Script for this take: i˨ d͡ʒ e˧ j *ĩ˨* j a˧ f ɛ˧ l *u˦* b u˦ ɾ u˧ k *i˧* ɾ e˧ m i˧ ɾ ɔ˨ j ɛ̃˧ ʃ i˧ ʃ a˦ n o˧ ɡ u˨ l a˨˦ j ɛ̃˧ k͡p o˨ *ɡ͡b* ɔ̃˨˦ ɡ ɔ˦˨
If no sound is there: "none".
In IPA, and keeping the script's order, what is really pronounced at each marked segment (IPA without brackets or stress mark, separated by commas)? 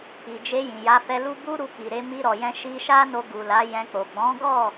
ĩ˨, u˦, i˨, ɡ͡b